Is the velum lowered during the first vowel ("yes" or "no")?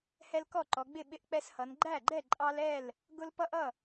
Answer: no